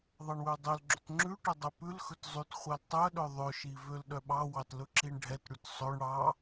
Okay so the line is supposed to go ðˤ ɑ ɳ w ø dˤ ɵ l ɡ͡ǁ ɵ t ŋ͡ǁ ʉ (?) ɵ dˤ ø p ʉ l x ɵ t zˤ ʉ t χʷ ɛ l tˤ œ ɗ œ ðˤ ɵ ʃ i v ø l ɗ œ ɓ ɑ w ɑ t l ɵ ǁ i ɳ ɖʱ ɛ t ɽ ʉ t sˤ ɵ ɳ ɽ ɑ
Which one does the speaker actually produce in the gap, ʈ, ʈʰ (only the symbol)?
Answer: ʈ